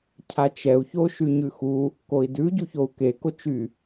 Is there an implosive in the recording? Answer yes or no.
no